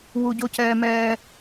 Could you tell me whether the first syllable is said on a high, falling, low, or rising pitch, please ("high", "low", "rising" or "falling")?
low